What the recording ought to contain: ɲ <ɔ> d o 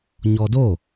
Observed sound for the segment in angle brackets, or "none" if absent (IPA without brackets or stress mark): ɔ